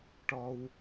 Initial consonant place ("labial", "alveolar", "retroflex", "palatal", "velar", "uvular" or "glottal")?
retroflex